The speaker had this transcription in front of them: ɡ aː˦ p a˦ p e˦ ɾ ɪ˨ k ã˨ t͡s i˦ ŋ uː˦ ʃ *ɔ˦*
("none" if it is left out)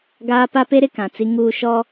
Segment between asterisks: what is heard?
ɔ˦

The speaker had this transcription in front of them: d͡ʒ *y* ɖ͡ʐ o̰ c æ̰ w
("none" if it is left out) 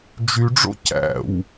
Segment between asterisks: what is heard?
y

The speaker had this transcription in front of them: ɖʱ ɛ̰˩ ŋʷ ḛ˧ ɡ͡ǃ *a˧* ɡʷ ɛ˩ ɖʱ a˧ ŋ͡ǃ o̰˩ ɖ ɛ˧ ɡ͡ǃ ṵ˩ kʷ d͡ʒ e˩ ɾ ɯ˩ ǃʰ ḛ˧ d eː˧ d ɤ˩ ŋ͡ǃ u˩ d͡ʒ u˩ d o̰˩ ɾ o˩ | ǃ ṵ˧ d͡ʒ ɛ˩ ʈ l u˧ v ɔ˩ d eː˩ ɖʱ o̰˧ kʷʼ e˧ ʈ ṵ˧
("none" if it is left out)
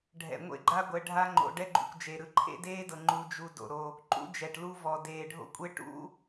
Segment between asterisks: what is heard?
a˧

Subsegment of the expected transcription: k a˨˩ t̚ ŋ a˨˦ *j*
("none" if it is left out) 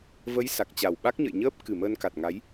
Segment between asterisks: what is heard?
j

